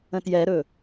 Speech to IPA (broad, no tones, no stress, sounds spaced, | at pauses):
ə̃ t j ɛ ɾ ɵ